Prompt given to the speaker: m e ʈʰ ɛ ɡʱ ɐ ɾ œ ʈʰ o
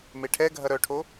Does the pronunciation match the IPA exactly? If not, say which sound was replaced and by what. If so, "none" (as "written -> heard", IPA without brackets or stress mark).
none